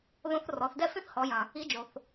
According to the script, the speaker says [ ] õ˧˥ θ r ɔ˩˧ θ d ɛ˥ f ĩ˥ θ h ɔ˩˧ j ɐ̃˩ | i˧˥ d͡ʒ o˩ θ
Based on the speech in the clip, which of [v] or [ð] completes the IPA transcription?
ð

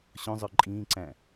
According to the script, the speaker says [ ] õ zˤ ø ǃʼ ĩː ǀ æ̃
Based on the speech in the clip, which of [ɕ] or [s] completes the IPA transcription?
ɕ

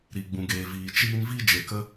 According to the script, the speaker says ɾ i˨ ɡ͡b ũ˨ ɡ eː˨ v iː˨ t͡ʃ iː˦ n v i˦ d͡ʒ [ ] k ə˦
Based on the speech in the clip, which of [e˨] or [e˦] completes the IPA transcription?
e˨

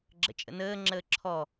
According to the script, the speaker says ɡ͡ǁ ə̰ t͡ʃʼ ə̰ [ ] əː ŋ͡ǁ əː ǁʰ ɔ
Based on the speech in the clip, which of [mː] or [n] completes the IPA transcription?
n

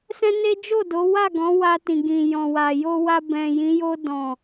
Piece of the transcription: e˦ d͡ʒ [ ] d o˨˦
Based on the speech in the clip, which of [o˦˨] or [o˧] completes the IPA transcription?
o˦˨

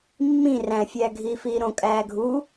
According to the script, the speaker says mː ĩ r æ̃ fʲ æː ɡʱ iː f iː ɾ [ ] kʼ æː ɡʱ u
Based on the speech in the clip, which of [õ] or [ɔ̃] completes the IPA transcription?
õ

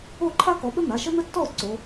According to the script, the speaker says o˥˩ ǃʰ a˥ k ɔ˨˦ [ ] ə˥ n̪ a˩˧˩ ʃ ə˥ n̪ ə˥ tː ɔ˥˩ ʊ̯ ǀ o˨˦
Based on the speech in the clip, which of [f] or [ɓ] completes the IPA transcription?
ɓ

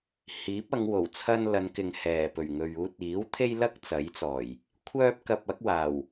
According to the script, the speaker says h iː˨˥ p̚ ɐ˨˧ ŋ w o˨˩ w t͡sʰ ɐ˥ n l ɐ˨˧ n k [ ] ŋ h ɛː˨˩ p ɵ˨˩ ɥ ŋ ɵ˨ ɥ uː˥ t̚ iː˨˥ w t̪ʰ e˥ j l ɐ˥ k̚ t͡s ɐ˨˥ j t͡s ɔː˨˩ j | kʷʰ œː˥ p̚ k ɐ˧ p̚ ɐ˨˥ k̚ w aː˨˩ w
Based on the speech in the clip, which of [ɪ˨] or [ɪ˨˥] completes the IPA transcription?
ɪ˨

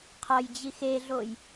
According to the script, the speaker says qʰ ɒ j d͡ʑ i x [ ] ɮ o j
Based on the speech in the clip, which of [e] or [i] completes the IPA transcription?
e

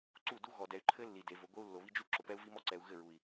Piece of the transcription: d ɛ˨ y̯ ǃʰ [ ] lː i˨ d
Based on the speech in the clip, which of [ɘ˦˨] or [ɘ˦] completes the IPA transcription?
ɘ˦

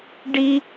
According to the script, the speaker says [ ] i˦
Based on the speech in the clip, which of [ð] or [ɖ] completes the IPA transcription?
ɖ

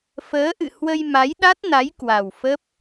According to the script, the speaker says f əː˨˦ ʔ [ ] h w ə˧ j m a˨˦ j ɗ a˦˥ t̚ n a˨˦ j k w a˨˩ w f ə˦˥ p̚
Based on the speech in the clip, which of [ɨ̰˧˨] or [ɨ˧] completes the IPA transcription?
ɨ̰˧˨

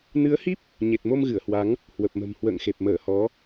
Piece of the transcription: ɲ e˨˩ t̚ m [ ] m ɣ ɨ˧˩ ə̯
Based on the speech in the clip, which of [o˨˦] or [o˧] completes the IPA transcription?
o˧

